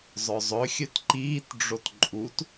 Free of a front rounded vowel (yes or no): no